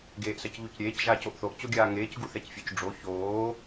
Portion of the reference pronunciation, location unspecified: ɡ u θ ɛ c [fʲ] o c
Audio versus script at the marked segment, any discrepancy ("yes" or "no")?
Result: no